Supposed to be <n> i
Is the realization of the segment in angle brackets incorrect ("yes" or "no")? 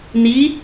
no